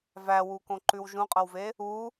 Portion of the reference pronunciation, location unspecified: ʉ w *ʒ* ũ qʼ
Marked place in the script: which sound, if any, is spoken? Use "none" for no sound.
ʒ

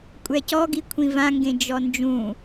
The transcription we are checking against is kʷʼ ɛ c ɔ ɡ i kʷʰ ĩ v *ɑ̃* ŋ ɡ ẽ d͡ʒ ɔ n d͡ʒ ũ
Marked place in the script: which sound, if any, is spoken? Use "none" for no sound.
ã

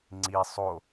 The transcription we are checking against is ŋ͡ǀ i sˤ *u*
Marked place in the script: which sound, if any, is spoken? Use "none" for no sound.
o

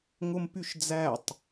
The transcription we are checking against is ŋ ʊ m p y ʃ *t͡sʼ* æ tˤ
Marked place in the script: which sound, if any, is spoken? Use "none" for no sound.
d͡z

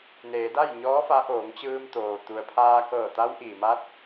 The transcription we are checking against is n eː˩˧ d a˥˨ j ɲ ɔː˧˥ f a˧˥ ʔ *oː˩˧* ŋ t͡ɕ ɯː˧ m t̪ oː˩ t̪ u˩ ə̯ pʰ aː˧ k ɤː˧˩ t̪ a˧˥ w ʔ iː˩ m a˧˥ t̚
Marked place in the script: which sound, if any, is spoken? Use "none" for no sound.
oː˩˧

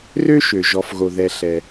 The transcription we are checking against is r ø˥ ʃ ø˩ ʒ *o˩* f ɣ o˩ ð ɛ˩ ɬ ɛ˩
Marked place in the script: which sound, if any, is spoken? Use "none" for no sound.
ɔ˩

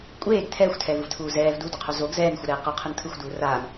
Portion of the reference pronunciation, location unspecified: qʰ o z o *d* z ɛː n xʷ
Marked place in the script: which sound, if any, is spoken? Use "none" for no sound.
ɡ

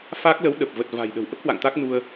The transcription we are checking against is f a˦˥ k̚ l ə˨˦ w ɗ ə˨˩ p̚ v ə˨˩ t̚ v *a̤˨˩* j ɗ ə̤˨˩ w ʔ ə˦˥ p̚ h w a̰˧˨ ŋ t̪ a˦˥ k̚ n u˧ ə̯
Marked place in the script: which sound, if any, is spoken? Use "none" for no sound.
a̤˨˩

